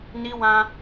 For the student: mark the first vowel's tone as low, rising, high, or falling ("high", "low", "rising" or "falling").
high